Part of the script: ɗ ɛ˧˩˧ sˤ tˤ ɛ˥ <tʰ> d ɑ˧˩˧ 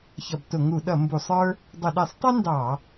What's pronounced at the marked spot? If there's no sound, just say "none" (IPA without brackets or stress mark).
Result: n